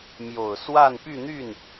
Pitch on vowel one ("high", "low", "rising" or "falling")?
low